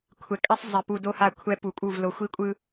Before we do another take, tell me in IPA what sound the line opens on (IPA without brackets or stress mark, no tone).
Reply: kʷʰ